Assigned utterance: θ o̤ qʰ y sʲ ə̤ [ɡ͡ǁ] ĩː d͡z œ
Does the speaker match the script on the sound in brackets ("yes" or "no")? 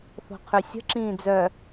no